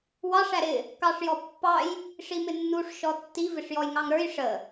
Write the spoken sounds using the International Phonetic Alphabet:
w ɑ ʂ æ ɾ ɪ | k ɑ ʂ j ɔ pː ɑ j | ʂ i m ɪ nː u ʂ ʃ ɔ tː i v ɪ ʂ j ɔ j ŋ ɑ ŋ ɾ ə˞ j ʂ ə

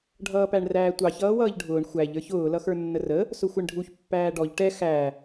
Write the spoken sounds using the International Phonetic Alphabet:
ɖʱ ʌː p æ ɳ r æː tʷ ɑ ç ʌː w ʌː ʎ ɖʱ ʊː ɳ xʷ æ ʎ ə˞ ç ʊː l ʌ x ə˞ nː ə r ə | s ʊ xʷ ɛ ɳ ɖʱ u ç pː æː ɖ ɔ ʎ ʈ ɛ x æ

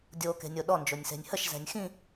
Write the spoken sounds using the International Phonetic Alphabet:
dʲ o k e̤ nʲ o ɗ ɔ n d͡ʒ o nʲ s e̤ nʲ h ə ʃ z ɛ̤ nʲ x ĩ

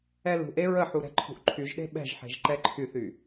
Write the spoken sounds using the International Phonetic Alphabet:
ɛ l ṳ ʔ e ɹ ə ħ u ɾ ɛ̤ ǃʰ ṳ ʔ ǃʰ y ʒ ɗ e̤ ɓ ɛ̤ ʒ ħ e̤ ʒ ǃ ɛ ǃʰ y θ y

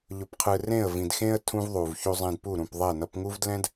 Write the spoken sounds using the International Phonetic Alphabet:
ʎ ʊ˨ p qʰ ɯ˨ r ẽ˦˨ ə̯ v ĩ˨ d x ẽ˦ ə̯ tʰ ũ˦ v ðˤ u˨ v ç u˨ zˤ ẽ˨ d p u˦˨ ɾ ũ˦˨ p ðˤ e˦˨ n ʌ˦ p ŋ u˦ v d l ɛ̃˦ d

